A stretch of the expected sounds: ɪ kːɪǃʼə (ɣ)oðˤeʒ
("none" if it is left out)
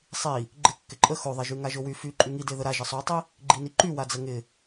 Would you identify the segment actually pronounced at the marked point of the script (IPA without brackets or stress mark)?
x